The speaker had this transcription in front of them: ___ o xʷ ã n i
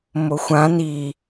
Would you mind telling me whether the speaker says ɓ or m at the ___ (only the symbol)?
m